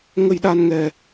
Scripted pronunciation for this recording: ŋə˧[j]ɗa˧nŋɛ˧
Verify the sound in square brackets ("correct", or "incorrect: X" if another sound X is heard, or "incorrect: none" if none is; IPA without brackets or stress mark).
correct